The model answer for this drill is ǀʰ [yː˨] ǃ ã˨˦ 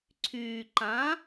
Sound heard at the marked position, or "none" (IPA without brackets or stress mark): yː˨